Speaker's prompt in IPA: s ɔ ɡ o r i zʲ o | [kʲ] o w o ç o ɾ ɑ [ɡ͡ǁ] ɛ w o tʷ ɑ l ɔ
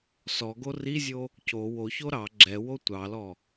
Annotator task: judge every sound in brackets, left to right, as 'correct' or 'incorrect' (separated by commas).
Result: incorrect, correct